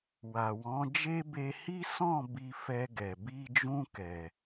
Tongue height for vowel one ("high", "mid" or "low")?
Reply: low